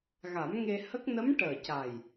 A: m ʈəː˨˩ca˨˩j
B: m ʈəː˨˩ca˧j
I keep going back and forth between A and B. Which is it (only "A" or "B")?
A